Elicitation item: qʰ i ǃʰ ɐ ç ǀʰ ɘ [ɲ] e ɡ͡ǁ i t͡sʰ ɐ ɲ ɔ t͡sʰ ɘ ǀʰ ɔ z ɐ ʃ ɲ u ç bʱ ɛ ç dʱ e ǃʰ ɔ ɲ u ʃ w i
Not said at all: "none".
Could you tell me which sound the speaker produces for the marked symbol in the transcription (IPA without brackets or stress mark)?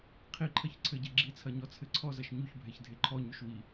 ɟ